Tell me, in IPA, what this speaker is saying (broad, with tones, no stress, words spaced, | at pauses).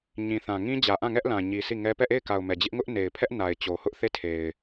ɲĩ˨θã˨ ŋĩ˦d͡ʑä˨ʔã˦˨ŋɛ˦ʔ lã˨ɲi˨ si˦˨ŋɛ˦ pɛ˦˨ʔe˦˨ɪ̯ka˨ʊ̯ mɛ˨d͡ʑɪ˦ʔ ŋʊ˦ʔne˨ɪ̯pʰɛ˦ʔ na˨ɪ̯t͡ɕo˨ hʊ˦ʔθe˦tʰe˨ɪ̯